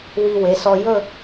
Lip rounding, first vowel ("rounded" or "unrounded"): unrounded